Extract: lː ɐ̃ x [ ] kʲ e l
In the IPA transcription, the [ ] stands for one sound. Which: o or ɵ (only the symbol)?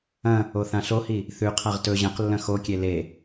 o